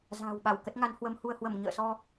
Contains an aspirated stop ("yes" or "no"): no